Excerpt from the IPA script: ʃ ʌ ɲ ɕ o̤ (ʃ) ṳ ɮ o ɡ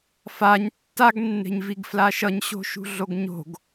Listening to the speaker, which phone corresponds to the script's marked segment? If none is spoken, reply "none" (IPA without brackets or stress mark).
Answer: ʃ